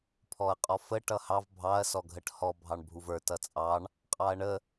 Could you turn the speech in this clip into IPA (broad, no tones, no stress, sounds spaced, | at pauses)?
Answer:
pʰ ɔ ɐ̯ qʼ ɔ f ə ʈ ʌ h ɑ v bʱ ɑ ɐ̯ s ɔ ɡʱ ə ʈ h ɔ bʱ ɑ ɳ bʱ u v ə˞ t ʌ t͡sʼ ɑ ɳ | qʼ ɑ ɐ̯ ɳ ə